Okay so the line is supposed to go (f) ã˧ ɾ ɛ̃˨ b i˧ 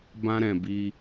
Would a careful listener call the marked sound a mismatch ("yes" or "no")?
yes